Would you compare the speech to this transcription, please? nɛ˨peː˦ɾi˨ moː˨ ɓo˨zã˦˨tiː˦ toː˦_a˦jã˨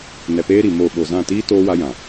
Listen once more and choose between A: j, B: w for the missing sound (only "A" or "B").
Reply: B